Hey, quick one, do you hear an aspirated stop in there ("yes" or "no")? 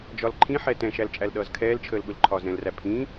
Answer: yes